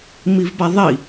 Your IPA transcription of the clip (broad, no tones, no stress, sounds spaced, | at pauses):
m i v b a ðˤ i